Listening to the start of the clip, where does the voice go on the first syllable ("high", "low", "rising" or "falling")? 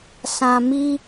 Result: low